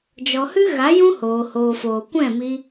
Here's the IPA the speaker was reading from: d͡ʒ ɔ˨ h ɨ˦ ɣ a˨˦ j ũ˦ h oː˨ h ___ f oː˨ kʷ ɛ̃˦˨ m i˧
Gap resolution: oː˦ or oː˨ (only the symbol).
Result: oː˨